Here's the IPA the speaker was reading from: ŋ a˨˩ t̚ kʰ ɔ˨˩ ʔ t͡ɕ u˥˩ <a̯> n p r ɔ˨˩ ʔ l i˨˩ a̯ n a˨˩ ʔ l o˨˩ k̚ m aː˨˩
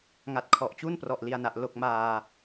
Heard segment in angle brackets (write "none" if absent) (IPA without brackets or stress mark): none